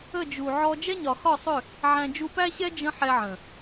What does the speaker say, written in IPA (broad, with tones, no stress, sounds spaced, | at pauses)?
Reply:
ə˦˨ d͡ʒ u˨ ʕ ɔ˧ d͡ʒ ɛ˦ ɲ ɒ˨ x ɒ˦˨ sˤ ʏ˦˨ | ʕ æ̃˧ d͡ʒ u˧ p æ˦ ɕ ɛ˦ d͡ʒ ə̃˦ ħ ɛ˧ ʕ ə̃˨